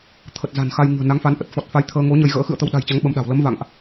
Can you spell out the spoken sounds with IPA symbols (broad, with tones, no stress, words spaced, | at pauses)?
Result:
t̪ʰə˨˩t̚ za̤˨˩nxa˧j ŋɨ̤˨˩ə̯na˨˦ŋfa˨˦n ʔə˨˩t̚fɔ˨˩t̚fa˨˦j t̪ʰəː˧ŋo˨˦ ɲə˧jɣə̰ː˧˥ xɨ̰˧˨ə̯ t̪ə˧wɗa̤˨˩jt͡ɕa˨˦ŋ ɓə˧mɗa̤˨˩w lə˨˦mva̰˧˨ŋʔ